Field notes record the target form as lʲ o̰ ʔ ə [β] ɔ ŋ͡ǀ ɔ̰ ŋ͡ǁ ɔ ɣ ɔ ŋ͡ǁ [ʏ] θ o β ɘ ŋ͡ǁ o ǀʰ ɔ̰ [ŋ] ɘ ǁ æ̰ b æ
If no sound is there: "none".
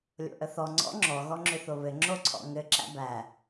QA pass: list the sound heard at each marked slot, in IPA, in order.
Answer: θ, ʏ, ŋ

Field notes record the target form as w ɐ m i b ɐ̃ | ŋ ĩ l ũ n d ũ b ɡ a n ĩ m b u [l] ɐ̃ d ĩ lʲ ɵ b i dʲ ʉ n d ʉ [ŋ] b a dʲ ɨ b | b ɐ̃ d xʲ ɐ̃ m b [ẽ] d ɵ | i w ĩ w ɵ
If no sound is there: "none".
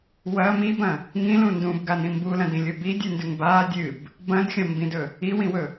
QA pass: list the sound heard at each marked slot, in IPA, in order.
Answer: l, ŋ, ĩ

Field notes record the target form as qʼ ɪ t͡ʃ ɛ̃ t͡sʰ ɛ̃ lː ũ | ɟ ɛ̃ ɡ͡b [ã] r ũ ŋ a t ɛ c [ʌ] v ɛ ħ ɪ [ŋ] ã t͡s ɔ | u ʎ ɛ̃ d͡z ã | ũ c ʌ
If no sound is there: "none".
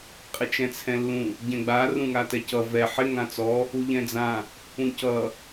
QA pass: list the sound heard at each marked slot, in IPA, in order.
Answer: a, ʌ, ŋ

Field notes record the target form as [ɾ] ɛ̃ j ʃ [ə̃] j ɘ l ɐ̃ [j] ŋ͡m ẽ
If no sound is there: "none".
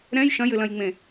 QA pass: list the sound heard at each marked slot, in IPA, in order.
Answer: ɾ, ɐ̃, j

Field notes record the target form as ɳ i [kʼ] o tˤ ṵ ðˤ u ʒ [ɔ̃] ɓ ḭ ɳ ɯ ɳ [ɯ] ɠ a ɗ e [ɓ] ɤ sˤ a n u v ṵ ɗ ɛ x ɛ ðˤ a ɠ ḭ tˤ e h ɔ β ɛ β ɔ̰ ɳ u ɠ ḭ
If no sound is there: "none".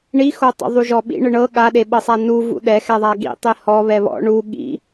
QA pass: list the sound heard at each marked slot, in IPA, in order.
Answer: x, ɔ, ɤ, ɓ

